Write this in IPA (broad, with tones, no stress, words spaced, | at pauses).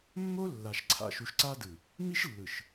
mːo˦lːa˨ʃ ǀʰa̰˨ʃu˨ʃǀa˦dɯ˨ | mi˦ʃlːɯ˨ʃ